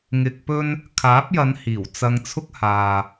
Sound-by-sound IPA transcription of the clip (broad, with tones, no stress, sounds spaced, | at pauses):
ŋ ɪ˧ k̚ p ɵ˥ n | kʰ aː˨˥ p̚ j ɐ˨˧ n h iː˨˩ w t͡s ɐ˧ ŋ t͡sʰ ʊ˥ k̚ h aː˨